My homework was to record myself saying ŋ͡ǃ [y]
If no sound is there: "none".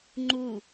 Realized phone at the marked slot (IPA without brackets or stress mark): u